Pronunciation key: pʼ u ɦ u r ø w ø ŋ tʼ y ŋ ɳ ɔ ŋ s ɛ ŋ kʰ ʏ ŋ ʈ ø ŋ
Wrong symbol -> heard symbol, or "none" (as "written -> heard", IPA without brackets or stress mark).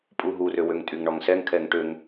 ʏ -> ɛ